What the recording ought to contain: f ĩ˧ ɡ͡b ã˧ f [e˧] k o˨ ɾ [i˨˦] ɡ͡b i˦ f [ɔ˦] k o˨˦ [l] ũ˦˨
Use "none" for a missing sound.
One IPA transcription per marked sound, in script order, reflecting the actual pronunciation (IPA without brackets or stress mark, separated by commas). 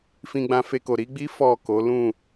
e˧, i˨˦, ɔ˦˨, l